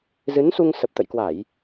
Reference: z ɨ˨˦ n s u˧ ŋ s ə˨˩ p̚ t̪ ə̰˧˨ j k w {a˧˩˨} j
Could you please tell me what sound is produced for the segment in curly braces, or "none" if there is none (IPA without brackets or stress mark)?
a˧˩˨